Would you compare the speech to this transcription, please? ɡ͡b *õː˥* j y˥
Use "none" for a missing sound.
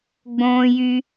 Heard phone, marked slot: õː˥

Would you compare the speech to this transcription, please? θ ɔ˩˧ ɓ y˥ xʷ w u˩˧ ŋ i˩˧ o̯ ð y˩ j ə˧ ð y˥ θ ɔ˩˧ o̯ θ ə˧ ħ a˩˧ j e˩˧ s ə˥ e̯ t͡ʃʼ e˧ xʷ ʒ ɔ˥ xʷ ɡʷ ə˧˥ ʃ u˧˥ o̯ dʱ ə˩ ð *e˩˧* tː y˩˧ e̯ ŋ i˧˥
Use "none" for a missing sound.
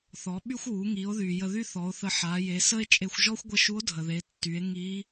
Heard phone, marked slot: e˩˧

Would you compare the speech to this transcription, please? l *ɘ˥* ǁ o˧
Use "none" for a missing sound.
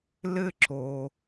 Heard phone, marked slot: ɘ˥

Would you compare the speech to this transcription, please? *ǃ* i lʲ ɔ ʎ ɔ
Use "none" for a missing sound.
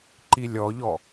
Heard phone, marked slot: ǃ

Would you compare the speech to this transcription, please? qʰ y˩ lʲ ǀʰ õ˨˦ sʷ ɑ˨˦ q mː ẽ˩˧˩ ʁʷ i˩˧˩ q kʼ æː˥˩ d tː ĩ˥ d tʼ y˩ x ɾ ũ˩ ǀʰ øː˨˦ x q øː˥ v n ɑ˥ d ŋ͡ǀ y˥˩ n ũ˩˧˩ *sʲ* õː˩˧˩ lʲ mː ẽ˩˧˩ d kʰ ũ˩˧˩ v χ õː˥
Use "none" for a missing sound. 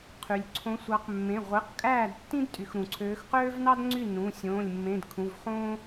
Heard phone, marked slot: sʲ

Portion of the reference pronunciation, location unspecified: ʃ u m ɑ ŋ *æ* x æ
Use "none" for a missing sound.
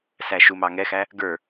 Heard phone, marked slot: ɛ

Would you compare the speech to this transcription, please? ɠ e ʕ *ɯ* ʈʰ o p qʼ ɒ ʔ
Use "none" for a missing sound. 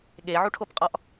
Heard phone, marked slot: u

